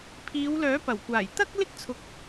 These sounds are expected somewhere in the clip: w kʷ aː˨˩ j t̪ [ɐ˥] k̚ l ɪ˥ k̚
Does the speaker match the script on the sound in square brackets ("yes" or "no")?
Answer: yes